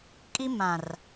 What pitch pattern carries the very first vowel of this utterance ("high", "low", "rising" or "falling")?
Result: high